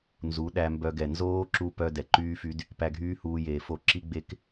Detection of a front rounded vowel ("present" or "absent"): present